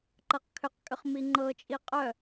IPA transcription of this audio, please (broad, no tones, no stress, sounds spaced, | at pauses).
ǃ ɤ q kʰ ʏ q kʼ ʏ χ m i ŋ͡ǃ ɤ t͡ʃʼ i qʼ œ